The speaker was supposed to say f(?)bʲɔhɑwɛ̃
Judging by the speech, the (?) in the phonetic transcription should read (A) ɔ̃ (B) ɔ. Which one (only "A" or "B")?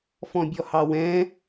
A